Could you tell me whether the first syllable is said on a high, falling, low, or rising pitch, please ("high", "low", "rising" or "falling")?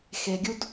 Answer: low